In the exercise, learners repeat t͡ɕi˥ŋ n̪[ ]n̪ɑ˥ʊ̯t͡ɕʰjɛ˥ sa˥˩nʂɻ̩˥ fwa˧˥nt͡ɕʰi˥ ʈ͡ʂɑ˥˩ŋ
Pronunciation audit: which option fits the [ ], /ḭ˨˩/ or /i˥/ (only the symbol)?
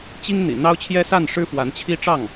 ḭ˨˩